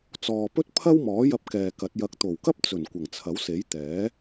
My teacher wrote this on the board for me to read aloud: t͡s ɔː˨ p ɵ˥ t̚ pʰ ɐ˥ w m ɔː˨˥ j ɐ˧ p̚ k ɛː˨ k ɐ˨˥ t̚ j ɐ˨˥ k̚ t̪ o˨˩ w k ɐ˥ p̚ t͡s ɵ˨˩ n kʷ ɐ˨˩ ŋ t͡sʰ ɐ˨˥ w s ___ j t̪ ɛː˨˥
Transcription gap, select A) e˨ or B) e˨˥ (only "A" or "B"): B